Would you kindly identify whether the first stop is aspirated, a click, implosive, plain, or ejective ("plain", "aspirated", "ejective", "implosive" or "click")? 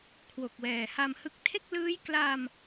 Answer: aspirated